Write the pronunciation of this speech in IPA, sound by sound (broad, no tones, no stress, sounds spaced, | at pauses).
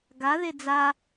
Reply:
ɡ a ð e d͡z a